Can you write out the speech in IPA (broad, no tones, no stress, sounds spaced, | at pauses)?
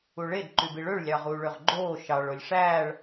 u ɭ e d ǃ y b i ɭ ø ɭ lʲ ɑ ʁ uː ɭ ø ʁ ɡ͡ǃ oː ʃ ɑ ɭ o lʲ ʂ æː ɭ